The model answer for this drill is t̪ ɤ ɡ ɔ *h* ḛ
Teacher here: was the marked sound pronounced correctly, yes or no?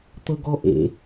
no